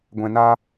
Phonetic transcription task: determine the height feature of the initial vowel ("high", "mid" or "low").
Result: mid